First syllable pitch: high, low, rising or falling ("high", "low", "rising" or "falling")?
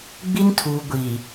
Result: high